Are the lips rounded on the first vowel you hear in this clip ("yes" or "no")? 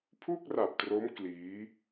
yes